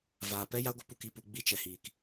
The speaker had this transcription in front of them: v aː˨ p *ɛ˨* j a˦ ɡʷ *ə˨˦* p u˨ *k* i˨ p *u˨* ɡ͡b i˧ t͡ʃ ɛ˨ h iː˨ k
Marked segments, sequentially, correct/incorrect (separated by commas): incorrect, correct, correct, correct